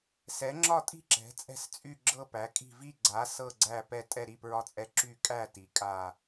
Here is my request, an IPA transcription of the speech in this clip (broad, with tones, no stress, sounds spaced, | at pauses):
s ɛ˩˥ ŋ͡ǁ ɒ˦˨ tʼ i̤˦˨ ǁ ɛ̤˩˥ t͡sʼ ɛ̤˦˨ s t͡sʼ y˦˨ ɡ͡ǁ ɤ˦˨ p æ˩˥ kʼ i̤˦˨ v i˦˨ ɡ͡ǀ a˩˥ s ɤ˦˨ ɡ͡ǀ æ˦˨ p ɛ˦˨ tʼ ɛ˦˨ ɾ i˦˨ p ɹ ɒ˦˨ t͡sʼ ɛ˦˨ ǁ y˦˨ kʼ æ˦˨ t i˩˥ kʼ a˦˨